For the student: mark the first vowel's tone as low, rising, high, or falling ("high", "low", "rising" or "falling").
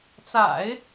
low